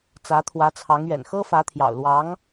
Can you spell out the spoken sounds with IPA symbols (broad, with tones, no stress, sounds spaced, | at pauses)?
t͡s ä˧˥ t̪ʰ w ä˧˥ t͡sʰ ɑ˧˥ ŋ ɥ ɛ̰˨˩ n x ɤ˥ f ä˧˥ t̪ʰ j ɑ̰˨˩ ʊ̯ l w ɑ˧˥ ŋ